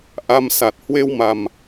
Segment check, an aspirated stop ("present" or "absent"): absent